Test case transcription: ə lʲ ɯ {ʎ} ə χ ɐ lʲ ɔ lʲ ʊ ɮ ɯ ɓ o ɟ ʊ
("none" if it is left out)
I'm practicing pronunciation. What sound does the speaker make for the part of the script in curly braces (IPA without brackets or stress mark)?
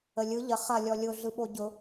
ʎ